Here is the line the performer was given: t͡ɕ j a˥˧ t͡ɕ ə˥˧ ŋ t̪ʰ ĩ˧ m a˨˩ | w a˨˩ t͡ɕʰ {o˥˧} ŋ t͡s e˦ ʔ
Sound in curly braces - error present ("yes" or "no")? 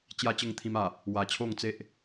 no